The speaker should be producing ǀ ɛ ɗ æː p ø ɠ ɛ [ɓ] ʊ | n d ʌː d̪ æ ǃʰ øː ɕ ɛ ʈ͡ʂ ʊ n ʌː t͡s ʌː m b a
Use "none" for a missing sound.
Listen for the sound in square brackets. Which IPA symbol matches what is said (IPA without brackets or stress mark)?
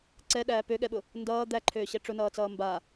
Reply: ɓ